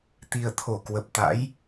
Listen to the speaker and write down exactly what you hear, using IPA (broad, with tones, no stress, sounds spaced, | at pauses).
t̪ i˨˩ ə̯ t̪ʰ o˧˩ k w ə˨˩ p̚ t̪ a̰˧˥ j